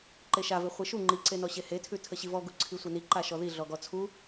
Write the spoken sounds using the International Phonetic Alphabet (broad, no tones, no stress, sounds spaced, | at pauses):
ǃ e ʃ a v e χʷ i ʃ u ŋ͡ǃ i ǀ e n ɔ ɕ e h e tʰ ʉ tʰ ə ɕ i v ɔ ɡ u ǀʰ i sʷ e n i ǃ a ʃ ɔ ð i ɮ ɔ ɡ ɔ t͡sʰ u